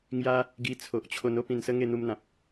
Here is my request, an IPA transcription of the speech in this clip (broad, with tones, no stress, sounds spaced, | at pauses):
ŋ j a˦ | ɡ i˧ t͡sʰ o˨ ʔ t͡ɕʰ o˧ n o˦ p ĩ˨˩ n s ə˦ ŋ e˥˧ n̪ u˧ m n̪ ã˨ p̚